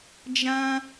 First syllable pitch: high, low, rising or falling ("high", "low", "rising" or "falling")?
high